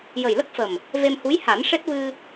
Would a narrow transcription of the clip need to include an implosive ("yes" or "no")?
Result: no